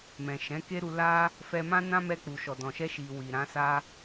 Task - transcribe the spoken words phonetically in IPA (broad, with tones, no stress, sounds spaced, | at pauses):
m ɛ̃˨ ʃ ɛ̃˨˦ k e˦ ɾ u˧ l a˦ | f ɛ˧ m ã˦ n ã˦ m ɛ˧ k͡p u˨ ʃ ɔ˨ d ɔ̃˨ ʃ ɛ˧ ʃ i˨ w i˨ ɾ ã˨˦ s a˦